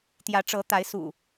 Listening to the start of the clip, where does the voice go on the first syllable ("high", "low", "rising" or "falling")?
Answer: rising